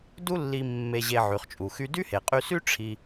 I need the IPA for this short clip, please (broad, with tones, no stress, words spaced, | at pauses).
du˥lːi˧ mːe˧ʑe˧ ʕy˩χt͡ʃʼu˩xy˧dy˥ he˩qʼy˧sy˥ ʈ͡ʂʰi˧